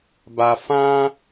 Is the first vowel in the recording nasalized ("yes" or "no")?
no